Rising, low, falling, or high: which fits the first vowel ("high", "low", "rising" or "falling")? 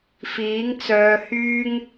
rising